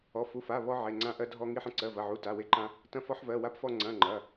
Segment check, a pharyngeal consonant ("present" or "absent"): present